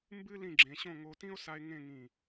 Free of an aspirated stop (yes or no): yes